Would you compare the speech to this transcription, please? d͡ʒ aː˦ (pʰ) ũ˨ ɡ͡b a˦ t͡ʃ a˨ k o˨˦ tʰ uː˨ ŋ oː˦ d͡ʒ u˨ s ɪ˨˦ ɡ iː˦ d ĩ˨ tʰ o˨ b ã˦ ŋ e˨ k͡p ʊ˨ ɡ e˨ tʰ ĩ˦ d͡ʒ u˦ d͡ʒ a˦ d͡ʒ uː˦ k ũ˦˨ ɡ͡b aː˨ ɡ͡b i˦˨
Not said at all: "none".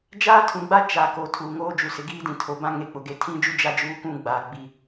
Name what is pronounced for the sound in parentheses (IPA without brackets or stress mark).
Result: tʰ